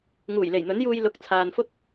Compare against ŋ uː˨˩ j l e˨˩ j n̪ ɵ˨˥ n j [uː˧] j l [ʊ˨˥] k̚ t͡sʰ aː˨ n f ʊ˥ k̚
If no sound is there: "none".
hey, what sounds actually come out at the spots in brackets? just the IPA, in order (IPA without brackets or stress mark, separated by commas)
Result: uː˧, ʊ˨˥